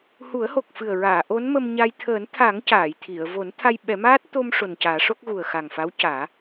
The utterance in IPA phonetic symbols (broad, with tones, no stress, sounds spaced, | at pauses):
h u˨˩˦ ə̯ h o˨˩ k̚ f ɨ˨˩ ə̯ ɹ aː˨˩˨ ʔ o˧˥ n m ə˧ m ɲ a˧ j t̪ʰ əː˨˩˦ n t̪ʰ a˨˩˦ ŋ c aː˨˩˨ j t̪ʰ i˨˩˨ ə̯ v o˨˩˦ n t̪ʰ a˧ j ɓ ɛ˨˩˦ m aː˦˥ t̚ t̪ o˧ m ʂ o˨˩ n c aː˨˩˦ ʂ o˦˥ k̚ ɣ u˨˩ ə̯ x a˨˩ ŋ f a˧˥ w c aː˨˩˦